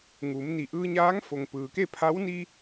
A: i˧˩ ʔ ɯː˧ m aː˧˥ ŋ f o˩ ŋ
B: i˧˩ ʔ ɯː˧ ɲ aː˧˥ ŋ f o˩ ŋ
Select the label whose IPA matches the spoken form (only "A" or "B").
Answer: B